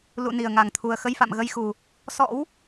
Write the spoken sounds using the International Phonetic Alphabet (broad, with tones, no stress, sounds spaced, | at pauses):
l ṵ˧˨ n i˨˩ ə̯ ŋ a˨˩ ŋ t̪ʰ u˨˩ ə̯ x ə˧ j f a̰˧˨ m ɣ ə˧ j x u˨˩ | s ɔ̰˧˥ w